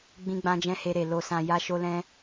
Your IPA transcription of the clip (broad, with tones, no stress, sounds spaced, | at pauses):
ɡ͡b ĩ˧ ɡ͡b ã˧ d͡ʒ ɛ̃˧ h e˧ ɾ e˨ l o˨ s ã˨ j a˧ ʃ o˧ l ɛ̃˧